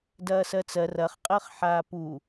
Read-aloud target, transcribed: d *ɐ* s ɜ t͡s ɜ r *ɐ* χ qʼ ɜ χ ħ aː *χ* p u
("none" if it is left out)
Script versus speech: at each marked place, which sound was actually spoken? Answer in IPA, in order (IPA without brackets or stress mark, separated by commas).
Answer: ɐː, ɐ, none